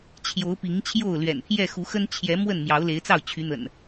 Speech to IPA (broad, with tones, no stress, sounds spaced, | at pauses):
t͡ɕʰ j o˨˦ ʊ̯ p i˨˦ ŋ t͡ɕʰ j o˥˨ ʊ̯ l ɥ ɛ̰˨˩ n pʰ j ɛ˥˨ x u˨˦ x ə˦ n t͡ɕʰ j ɛ˨˦ m w ə˥˨ n m j ɑ˨˦ ʊ̯ l e˨˦ ɪ̯ t͡s ɑ˥˨ ʊ̯ t͡ɕʰ y˨˦ n̪ ə̰˨˩ n